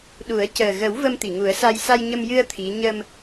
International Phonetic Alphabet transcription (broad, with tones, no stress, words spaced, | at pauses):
ɗu˨˩˦ə̯ cəː˨˩ ɣə˨˩˦w və˧mt̪i˨˩˨ŋu˨˩˦ə̯sa˧j sa˧jɲə˧mjɨ˧ə̯ t̪ʰi˧˥ ɲə˧m